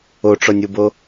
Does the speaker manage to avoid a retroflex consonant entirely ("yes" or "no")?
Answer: no